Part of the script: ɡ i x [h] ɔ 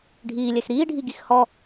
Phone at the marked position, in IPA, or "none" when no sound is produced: h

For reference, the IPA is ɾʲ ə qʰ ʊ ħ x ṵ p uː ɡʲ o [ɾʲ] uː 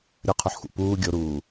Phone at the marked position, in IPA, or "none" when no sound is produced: ɾ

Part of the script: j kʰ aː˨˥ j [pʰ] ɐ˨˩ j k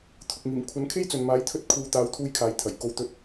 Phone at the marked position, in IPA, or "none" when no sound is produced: t̪ʰ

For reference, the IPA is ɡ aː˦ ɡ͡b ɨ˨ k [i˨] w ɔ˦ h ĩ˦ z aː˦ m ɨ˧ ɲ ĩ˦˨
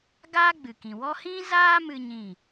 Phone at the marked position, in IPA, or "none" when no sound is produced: ĩ˨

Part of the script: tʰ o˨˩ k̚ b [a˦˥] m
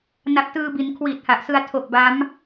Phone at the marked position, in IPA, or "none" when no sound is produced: a˦˥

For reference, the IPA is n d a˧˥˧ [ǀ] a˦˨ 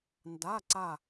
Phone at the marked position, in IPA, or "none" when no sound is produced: ǀ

